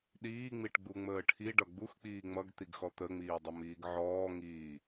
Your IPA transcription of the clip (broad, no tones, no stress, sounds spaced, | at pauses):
ɗ iː ŋ͡m i ʈ ɡ͡b u ŋ͡m əː ʈʰ i ɖ ʌ ɡ͡b u x k͡p iː ŋ͡m ʌ ɡ t̪ i ɡ x ɔ t̪ ə ŋ͡m iː dˤ ʌ m iː ɡ ʕ ɔː ŋ iː